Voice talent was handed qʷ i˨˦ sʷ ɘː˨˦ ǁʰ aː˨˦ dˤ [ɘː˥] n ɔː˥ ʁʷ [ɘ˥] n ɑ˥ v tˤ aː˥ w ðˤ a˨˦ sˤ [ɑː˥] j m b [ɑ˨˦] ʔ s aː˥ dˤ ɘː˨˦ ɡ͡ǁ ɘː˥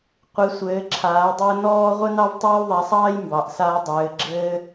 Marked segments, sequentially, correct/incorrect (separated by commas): correct, correct, correct, correct